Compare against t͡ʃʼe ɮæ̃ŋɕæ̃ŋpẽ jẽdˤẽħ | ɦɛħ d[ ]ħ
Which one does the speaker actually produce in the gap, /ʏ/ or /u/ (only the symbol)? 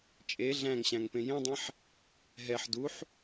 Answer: u